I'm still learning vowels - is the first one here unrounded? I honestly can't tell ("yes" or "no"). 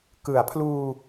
yes